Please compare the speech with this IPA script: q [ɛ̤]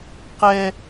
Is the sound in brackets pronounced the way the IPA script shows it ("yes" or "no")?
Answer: no